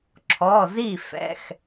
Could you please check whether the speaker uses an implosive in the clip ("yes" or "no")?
no